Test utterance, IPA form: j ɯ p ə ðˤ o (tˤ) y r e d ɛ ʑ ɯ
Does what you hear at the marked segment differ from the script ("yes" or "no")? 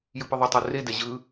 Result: no